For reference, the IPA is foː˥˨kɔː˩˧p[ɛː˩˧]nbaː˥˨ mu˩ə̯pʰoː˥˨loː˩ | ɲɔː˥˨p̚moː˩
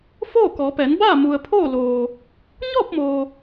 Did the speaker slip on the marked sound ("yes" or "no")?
no